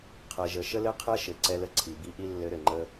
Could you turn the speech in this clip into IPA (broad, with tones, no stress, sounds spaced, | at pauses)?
qʰ ɛ˩ ʒ ə˩ ʃ ə˥ l ɘ˥ qʰ ɛ˥ ʃ ɘ˩ ǀ ɛ˧ l ə˧ ǀʰ i˩ b i˧ ʔ i˥ lː ɘ˧ ɾ ɘ˩ ŋ͡ǃ ə˧